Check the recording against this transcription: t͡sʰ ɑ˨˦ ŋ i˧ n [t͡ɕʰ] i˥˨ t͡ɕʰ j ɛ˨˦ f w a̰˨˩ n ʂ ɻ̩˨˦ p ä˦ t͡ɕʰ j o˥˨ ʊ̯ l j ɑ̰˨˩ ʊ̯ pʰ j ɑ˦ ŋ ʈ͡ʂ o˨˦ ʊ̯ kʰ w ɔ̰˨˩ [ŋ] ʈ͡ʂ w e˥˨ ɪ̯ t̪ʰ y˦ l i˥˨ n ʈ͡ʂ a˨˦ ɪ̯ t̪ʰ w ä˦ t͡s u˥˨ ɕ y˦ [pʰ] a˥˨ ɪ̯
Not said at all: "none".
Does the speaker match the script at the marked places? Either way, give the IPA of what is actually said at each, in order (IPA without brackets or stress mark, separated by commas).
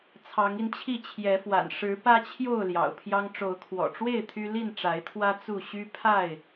t͡ɕʰ, none, pʰ